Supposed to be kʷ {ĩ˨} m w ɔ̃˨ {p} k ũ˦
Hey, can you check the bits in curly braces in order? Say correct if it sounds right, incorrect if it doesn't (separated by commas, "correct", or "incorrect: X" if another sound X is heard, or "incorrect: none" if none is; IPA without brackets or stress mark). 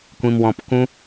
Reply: correct, correct